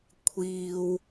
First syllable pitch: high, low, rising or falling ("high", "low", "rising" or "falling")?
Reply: high